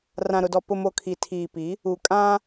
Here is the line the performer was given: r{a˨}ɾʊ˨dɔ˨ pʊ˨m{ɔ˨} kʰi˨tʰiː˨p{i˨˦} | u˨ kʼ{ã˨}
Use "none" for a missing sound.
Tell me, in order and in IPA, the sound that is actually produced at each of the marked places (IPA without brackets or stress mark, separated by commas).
ã˨, o˨, i˨˦, ã˦